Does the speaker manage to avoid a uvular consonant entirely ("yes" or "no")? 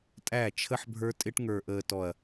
yes